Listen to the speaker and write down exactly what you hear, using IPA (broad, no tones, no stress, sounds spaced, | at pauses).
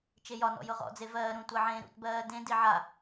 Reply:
t͡ʃ e j ɒ n ɔ̰ j ʊ ʁ ɔ̰ d͡z e v ɜː ɾ ũ tʷ ɜ ʕ ẽː ɾ ṵ t b ɜː d ẽ d i ʕ a